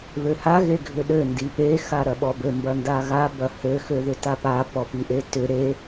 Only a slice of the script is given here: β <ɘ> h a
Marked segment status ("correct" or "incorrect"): incorrect